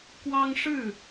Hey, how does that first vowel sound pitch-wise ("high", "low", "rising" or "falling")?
high